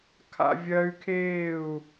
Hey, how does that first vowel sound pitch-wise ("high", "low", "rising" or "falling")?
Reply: high